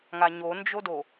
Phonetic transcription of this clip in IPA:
ŋ a ɲ o n d͡ʒ o d o

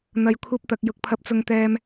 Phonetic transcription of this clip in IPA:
n̪ ɐ˧ j kʷʰ ɐ˥ p̚ t̪ ɐ˧ k̚ j ʊ˧ k̚ pʰ ɐ˥ p̚ t͡s ʊ˥ ŋ t̪ ɛː˥ m

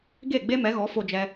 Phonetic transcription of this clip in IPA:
ɡ e˦˨ ɡ͡b e˦ m ɛ˨˦ ɣ ɔ˨˦ f o˧ d͡ʒ ɛ˧

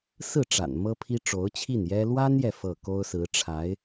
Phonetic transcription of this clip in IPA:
s ɹ̩˥˩ ʈ͡ʂ a̰˨˩ n m ɤ˥ pʰ i˥ ʈ͡ʂ o˧˥ ʊ̯ t͡ɕʰ i˥˩ n j ɛ˥ l w a˥ n j ɛ˨ f ɤ˥˩ k o˥ ʊ̯ s ɹ̩˧˥ ʈ͡ʂʰ a˧˥ ɪ̯

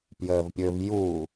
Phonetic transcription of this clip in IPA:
p j əː v pʲ ɵ v j u

